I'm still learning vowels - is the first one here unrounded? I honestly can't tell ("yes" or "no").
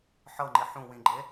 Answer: yes